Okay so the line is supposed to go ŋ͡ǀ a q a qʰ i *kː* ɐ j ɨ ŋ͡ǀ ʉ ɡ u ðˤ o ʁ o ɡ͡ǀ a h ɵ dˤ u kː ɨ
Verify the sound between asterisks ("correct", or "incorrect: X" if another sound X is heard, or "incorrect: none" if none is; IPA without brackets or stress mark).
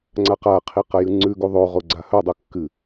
incorrect: q